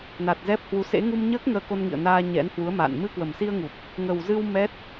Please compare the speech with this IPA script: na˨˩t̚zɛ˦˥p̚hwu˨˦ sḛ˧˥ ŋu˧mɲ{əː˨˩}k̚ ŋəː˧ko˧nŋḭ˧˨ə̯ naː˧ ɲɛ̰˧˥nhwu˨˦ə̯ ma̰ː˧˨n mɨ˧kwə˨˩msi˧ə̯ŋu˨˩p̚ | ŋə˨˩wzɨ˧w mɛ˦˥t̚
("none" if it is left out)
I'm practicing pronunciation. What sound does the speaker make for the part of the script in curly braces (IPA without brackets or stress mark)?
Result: əː˦˥